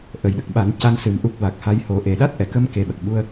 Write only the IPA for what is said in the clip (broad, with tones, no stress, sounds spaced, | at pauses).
ʔ ə˨˩ j ɗ ə˨˩ k̚ ɓ a˨˩˦ n c a˧ n s ɨ˨˩˦ m ʔ u˦˥ k̚ w a˨˩ k̚ h a˧ j h o˨˩˦ ʔ e˨˩˨ ɗ a˦˥ t̚ ʔ ɛ˨˩˨ k ə˧ m k e˨˩ ɓ ə˨˩ k̚ ɓ u˧ ə̯